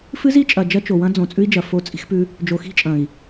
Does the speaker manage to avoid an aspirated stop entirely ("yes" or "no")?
yes